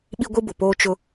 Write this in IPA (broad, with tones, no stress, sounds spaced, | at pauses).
ɓ i˦ ɡʷ i˦ b ʊ˨ p oː˦ t͡ʃ ʊ˦